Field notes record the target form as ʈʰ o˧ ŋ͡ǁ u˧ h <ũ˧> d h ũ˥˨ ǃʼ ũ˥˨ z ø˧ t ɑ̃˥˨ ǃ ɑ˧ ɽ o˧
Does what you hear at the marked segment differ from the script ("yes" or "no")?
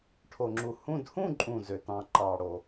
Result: no